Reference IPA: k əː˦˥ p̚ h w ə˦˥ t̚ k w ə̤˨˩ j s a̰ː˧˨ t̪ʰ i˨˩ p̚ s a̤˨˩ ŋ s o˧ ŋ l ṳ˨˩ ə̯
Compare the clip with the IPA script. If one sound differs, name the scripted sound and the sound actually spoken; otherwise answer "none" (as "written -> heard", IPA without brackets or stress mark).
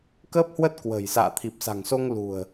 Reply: none